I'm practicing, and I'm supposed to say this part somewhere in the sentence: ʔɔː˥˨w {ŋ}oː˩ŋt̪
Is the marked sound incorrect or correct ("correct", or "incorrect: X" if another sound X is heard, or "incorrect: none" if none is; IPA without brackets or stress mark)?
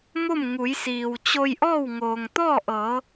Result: correct